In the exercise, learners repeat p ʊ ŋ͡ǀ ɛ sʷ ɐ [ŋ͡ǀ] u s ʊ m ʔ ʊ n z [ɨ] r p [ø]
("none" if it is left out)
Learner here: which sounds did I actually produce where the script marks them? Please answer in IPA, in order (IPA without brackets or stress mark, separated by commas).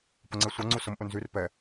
ŋ͡ǀ, y, ɛ